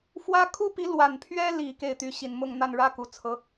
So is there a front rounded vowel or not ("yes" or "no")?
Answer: yes